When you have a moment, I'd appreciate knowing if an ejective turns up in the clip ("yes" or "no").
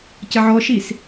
no